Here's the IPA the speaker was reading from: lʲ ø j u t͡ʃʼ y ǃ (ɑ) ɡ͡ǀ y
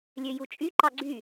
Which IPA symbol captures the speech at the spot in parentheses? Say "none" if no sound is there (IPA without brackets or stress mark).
ɑ